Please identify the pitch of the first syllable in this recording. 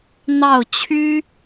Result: falling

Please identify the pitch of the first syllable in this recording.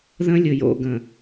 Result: high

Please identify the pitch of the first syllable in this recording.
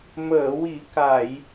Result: low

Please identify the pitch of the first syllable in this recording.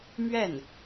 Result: falling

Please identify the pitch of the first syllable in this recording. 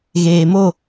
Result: low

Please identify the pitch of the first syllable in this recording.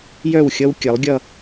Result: falling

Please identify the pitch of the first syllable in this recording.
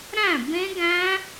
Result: falling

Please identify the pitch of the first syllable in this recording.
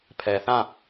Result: low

